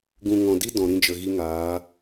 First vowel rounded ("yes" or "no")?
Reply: yes